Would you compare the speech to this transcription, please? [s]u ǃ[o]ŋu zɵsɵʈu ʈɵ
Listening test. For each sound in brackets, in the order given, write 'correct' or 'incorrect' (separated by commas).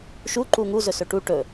incorrect, incorrect